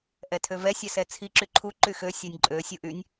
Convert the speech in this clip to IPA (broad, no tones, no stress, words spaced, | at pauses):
ʔɛtʰøvɛ sʲɛsɛt͡sʰi ǁyǃʰu ǃyxø sʲɛnʲǃʼø sʲuʔynʲ